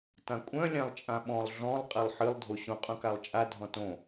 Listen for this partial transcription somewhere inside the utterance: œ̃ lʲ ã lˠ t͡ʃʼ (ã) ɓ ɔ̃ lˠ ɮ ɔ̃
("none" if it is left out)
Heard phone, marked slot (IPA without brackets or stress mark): ã